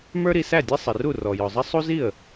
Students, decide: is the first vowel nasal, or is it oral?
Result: oral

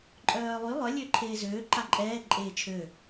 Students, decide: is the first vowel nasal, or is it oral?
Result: oral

